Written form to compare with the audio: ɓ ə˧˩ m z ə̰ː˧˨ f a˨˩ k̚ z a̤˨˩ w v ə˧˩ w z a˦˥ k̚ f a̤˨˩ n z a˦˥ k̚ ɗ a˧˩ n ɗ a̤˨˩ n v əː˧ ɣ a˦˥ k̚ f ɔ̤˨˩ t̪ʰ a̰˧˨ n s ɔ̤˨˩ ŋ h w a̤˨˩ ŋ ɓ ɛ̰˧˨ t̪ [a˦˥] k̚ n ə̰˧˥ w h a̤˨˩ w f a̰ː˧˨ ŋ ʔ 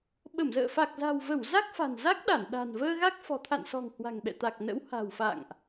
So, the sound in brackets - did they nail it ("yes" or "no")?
no